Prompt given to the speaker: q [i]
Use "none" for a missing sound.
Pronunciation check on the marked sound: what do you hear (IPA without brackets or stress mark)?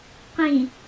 ĩ